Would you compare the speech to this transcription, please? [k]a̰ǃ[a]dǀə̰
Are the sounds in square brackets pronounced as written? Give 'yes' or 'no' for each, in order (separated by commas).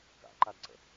yes, yes